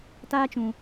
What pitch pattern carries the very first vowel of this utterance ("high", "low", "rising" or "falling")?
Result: high